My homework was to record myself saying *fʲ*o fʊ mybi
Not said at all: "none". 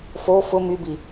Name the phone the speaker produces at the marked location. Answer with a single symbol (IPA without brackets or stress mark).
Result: f